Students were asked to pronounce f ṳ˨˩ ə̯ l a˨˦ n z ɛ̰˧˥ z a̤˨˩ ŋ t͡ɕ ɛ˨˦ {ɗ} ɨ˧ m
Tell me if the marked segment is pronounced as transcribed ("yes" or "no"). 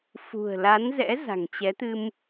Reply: no